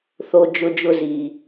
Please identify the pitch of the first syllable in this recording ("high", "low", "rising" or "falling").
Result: high